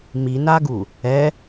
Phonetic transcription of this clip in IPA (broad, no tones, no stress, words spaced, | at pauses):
minaɡu | ɛ